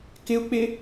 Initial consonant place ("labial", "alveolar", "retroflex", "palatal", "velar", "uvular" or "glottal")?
velar